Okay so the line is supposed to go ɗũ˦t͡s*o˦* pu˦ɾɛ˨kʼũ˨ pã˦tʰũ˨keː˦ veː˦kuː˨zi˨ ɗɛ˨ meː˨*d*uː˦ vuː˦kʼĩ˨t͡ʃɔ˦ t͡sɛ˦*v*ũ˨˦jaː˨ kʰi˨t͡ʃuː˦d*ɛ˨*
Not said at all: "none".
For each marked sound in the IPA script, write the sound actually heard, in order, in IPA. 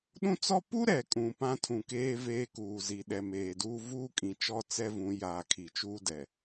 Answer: ɔ˦, d, v, ɛ˨

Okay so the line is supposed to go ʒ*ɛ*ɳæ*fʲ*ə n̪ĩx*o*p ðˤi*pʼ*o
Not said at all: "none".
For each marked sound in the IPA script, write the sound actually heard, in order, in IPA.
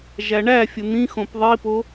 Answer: æ, fʲ, õ, p

